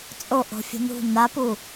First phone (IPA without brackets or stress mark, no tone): t͡sʼ